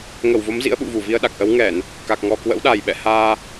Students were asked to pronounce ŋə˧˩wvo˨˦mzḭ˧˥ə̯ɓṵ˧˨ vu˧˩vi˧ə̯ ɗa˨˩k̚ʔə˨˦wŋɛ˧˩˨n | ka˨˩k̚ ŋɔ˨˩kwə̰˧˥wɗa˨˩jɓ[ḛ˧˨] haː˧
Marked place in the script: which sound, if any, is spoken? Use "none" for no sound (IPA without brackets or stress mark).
ɛ̰˧˨